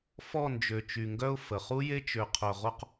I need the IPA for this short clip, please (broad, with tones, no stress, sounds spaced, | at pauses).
f ɔ˦˨ n d͡ʒ ø˨ t͡ʃ y˨ ŋ ɡ œ˦ ʊ̯ f ə˨ χ u˦ j e˦ t͡ʃ ø˨ qʰ œ˨ ʁ o˦ q